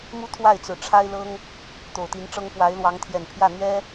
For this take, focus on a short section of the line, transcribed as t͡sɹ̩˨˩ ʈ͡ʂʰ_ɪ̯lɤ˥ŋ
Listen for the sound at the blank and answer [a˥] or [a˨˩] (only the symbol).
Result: a˥